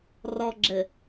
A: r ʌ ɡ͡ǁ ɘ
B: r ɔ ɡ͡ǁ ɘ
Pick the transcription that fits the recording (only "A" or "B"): B